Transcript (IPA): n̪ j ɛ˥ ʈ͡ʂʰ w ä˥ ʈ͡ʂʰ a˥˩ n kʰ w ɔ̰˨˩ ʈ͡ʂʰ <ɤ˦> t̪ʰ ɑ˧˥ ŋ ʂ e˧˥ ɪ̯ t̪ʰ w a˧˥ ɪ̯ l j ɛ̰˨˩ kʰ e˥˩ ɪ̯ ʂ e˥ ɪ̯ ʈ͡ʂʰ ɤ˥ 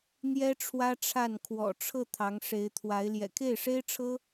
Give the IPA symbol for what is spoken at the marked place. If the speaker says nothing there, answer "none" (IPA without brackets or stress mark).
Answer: ɤ˥˩